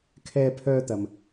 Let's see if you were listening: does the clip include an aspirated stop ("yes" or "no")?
yes